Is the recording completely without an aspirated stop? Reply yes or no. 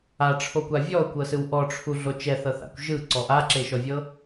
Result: no